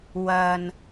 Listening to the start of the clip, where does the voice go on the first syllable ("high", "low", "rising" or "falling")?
low